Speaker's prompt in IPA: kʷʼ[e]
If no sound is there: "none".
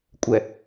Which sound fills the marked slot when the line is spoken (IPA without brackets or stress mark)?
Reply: ɛ